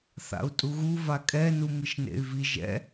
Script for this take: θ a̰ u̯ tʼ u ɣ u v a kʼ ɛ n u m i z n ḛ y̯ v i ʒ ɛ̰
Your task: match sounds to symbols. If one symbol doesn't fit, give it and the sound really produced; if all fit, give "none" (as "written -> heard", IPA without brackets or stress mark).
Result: z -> ʃ